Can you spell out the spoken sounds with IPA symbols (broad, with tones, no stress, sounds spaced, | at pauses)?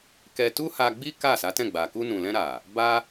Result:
k ɛ˧ t u˦ h a˧ ɡ͡b i˦ k a˦˨ s a˨˦ t ɛ̃˦˨ ɡ͡b a˨ k u˧ n ũ˨ l ɛ̃˧ ɾ a˨ | b a˦